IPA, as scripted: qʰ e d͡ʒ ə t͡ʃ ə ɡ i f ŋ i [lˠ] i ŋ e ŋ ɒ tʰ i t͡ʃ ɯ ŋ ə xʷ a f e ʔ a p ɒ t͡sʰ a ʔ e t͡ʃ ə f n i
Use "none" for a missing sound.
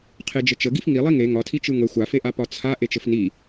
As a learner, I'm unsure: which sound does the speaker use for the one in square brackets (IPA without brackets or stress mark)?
lˠ